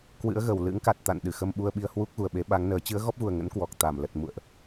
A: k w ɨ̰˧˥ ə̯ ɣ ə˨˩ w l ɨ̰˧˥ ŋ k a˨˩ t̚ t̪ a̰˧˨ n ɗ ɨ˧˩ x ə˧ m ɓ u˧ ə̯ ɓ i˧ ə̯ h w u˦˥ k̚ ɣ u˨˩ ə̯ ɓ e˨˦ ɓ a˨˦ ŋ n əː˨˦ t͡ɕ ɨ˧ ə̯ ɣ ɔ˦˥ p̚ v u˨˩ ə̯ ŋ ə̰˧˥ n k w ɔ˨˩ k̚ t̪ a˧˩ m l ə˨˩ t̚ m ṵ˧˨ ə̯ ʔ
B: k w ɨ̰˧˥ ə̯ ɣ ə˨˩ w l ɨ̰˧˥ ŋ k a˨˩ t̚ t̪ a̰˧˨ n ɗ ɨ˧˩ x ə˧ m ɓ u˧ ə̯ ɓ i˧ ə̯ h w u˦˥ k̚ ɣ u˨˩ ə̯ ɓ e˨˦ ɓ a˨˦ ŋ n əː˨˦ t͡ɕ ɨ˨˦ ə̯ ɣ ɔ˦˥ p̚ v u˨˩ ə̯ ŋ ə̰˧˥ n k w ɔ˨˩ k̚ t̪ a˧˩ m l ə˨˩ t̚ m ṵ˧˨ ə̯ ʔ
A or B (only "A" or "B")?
B